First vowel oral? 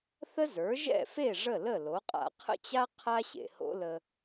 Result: yes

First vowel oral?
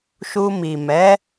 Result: yes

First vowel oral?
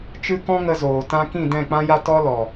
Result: yes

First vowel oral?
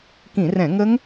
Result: no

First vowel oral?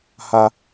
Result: yes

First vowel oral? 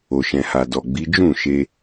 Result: yes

